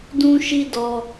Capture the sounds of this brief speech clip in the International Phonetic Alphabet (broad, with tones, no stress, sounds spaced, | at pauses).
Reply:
d ũ˦ ʃ i˦ d ɔ˧